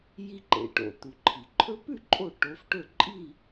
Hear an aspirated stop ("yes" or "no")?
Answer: yes